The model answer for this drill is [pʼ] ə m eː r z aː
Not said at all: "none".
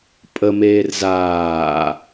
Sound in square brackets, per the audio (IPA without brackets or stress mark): pʼ